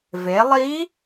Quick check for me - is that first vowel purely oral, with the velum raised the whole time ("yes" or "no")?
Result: yes